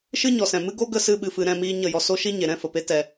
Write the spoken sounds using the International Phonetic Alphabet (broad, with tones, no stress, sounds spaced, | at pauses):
ʃ ɨ˦ ɲ ɔ˨ s ɛ̃˨ m ɨ˦ ɡ o˦ ɡ ə˦˨ s ɨ˧ ɓ ɨ˨ f ɨ˨ ɾ ɛ̃˦˨ m iː˧ ɲ ə˦˨ j ɔ˧ s o˦ ʃ i˦ ɲ e˨ ɾ ɛ̃˦ f ə˨ p e˦ t ɛ˧